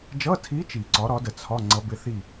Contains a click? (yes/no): yes